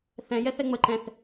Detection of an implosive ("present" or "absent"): absent